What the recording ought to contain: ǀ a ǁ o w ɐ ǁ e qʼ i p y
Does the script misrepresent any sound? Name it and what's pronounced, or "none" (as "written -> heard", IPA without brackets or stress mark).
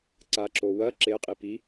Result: y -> i